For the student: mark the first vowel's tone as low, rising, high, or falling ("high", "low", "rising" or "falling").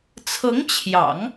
rising